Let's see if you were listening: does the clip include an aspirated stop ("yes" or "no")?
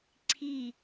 yes